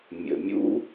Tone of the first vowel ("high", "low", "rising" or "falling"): low